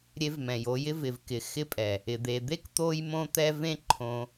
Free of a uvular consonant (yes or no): yes